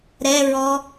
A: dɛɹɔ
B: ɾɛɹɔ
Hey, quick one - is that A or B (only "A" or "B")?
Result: B